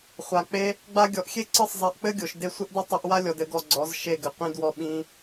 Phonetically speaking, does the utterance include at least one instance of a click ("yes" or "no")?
yes